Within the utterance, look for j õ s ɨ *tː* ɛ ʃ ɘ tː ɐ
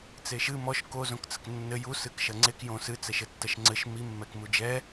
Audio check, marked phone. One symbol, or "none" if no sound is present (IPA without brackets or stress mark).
t͡s